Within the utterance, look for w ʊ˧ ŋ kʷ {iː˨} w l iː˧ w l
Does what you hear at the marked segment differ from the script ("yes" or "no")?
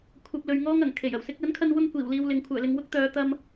yes